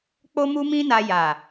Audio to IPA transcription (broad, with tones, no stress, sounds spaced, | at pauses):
k͡p o˦ m u˦ m ĩ˦ n a˧ j a˨